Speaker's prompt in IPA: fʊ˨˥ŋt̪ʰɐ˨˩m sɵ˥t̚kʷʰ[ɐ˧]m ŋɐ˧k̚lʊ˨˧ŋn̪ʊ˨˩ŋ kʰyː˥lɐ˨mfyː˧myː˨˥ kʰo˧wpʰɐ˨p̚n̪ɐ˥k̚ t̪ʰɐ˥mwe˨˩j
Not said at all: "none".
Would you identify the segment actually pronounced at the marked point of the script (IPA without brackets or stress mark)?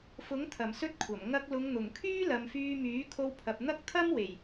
ɐ˨˩